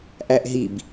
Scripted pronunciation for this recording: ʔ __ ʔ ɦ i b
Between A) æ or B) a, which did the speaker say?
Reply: A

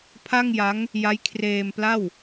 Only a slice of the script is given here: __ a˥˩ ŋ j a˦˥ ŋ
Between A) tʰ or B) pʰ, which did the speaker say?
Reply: B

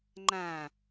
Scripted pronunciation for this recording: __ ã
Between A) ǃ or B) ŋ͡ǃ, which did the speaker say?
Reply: B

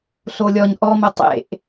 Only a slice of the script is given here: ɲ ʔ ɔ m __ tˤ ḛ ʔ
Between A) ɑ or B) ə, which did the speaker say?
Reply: B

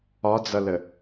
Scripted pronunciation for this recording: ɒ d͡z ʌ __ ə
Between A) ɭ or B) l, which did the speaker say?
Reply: B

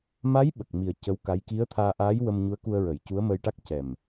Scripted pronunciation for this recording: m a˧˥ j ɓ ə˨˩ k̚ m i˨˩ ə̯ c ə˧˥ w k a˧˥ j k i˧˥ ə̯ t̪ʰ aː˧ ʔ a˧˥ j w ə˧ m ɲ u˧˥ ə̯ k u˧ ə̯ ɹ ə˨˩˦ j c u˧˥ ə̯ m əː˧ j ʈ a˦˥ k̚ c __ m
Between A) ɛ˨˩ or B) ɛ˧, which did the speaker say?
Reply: A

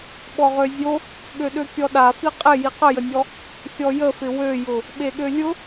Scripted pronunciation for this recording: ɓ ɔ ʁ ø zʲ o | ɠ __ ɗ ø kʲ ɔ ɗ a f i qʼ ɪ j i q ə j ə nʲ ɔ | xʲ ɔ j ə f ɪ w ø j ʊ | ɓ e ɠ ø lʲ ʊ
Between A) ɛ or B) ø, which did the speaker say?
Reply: B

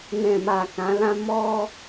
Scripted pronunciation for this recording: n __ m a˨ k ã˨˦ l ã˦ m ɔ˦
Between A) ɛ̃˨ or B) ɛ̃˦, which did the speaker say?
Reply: A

